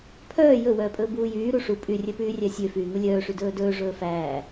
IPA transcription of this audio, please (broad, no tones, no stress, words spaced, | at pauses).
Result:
pʰœː jɵwœːpʼɵː buːjyː ɾuʂu pʼyrʲœpyː rʲæsʲøfyː ŋulʲœːʂy dɵːdɵː ʐɵːfæː